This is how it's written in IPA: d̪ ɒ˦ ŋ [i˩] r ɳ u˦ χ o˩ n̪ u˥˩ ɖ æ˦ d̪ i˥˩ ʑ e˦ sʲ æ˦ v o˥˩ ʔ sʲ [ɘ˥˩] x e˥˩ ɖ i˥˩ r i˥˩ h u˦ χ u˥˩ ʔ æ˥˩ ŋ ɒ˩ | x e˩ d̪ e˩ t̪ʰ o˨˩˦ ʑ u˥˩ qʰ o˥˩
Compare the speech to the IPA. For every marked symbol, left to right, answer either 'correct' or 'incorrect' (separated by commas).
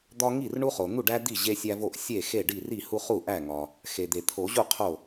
incorrect, incorrect